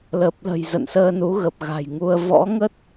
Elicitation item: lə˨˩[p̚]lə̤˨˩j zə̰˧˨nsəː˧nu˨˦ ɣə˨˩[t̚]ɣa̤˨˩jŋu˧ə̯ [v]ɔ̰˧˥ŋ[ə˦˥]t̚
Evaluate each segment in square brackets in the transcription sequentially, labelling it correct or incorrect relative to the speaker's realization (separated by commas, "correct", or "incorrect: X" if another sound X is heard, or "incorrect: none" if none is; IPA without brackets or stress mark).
correct, incorrect: p̚, correct, correct